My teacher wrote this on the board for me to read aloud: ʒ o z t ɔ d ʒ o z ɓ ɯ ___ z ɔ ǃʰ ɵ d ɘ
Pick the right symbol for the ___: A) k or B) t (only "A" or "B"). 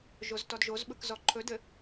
A